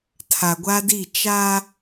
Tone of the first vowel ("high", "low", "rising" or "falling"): low